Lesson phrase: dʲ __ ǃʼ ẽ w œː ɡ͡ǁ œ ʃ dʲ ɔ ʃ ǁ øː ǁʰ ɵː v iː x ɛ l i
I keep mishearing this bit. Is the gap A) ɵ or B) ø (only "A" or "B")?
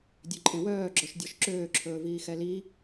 B